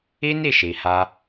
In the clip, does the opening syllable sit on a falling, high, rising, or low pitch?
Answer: high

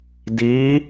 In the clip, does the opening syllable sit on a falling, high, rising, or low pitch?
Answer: rising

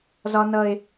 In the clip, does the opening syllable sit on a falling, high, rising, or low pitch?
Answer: high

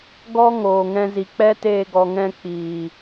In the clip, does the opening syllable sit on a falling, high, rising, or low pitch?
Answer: high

